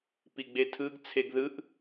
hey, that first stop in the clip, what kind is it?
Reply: plain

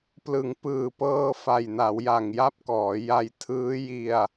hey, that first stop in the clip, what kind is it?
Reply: plain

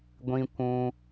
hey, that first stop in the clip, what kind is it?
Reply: plain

